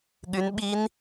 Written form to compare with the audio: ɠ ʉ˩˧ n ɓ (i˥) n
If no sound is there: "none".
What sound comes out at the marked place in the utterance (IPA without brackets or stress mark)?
i˧˥